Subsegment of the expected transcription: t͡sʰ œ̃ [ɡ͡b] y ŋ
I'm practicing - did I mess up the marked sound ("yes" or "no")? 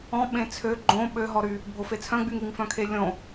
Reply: no